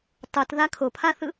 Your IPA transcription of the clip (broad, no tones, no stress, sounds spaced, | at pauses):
tˤ ɯ t ð a kʰ o pʰ a θ ɯ